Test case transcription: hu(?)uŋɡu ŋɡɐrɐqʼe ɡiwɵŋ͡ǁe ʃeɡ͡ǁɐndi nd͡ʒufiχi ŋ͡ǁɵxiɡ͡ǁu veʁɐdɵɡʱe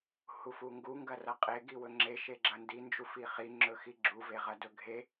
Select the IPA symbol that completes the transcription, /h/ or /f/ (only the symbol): f